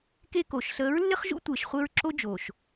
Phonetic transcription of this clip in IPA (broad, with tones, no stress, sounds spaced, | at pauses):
k e˦ k o˨ ʃ ɬ əː˨˦ ɹ lː ɪ˦ χ ʒ ṵ˦ tʷ ɪː˨ ʃ χʷ e˦ ɹ ǁ o˦ d͡ʒ oː˨ ʃ